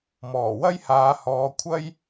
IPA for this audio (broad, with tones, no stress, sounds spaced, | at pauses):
m ɔː˨˩ w ɐ˥ j h aː˨˧ h ɔː˨˧ kʷʰ ɐ˥ j